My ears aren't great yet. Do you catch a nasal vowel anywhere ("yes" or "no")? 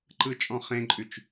yes